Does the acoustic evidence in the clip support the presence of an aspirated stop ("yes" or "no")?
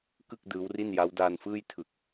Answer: yes